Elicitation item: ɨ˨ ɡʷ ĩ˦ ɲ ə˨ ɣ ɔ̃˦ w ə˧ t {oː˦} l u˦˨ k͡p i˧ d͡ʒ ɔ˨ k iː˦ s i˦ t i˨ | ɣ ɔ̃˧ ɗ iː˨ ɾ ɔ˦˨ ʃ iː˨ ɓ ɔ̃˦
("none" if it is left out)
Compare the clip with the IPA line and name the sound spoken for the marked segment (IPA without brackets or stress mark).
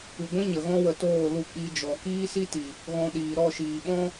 oː˦˨